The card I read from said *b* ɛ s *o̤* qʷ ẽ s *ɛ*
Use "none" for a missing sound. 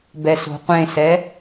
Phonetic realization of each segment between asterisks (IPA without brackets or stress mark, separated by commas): b, o̤, ɛ